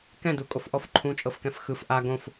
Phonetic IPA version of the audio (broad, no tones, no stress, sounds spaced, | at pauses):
k ɛ̃ d u kʼ o f ʔ ɔ f ǃʰ ũ t͡ʃʼ ɤ f k ɛ̃ f x ɯ f ʔ a ɡ õ f